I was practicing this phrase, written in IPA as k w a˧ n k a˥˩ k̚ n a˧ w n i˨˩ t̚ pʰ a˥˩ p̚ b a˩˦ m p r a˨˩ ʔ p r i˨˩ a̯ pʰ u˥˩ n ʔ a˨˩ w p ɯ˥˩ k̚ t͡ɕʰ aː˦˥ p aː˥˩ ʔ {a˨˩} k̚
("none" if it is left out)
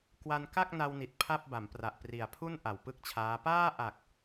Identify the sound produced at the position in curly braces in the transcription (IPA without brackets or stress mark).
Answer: a˨˩